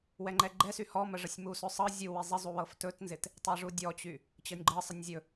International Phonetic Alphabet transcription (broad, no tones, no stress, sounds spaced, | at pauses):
w ɛ ŋ͡ǃ ɛ ɡ͡ǃ ɛ s y h ɔ m ə ʐ ə sʲ m u s ɵ sˤ ɤ zʲ u w i zˤ ɪ zˤ u w ɤ f t ɵ t n z ɪ t | tˤ ɛ ʐ u dʲ ɔ t͡ɕ y | t͡ɕ ɤ nʲ ɡ͡ǃ ɤ sˤ ə nʲ zʲ ɵ